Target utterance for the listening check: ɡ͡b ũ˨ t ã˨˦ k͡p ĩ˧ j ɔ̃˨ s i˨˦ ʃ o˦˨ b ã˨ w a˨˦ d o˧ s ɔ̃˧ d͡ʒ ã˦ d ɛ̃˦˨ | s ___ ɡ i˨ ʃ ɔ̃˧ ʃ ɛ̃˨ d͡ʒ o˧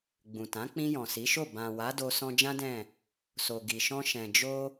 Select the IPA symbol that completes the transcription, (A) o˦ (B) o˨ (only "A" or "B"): B